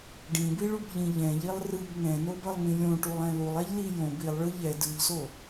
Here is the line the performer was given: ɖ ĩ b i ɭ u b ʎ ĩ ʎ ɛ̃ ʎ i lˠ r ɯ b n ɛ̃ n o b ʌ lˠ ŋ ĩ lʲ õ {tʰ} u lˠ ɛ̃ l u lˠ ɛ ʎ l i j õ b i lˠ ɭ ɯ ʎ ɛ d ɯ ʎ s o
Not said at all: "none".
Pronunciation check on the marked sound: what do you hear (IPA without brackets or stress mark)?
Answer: ʈ